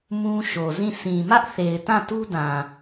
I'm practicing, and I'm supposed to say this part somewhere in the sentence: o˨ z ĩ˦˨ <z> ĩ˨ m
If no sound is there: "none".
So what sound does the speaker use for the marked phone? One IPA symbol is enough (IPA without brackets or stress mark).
s